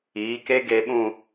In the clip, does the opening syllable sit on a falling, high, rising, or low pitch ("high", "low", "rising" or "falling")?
rising